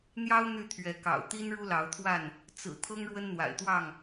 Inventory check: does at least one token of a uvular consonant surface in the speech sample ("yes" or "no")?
no